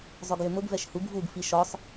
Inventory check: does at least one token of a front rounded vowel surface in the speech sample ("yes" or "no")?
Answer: yes